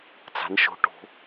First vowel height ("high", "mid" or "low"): low